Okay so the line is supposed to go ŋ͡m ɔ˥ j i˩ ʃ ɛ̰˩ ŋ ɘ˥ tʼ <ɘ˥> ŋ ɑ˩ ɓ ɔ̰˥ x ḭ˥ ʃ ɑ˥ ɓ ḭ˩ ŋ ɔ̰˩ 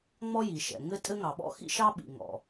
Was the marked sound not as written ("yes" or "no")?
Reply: no